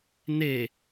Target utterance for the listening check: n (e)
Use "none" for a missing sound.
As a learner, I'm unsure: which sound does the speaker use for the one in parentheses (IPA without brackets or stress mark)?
e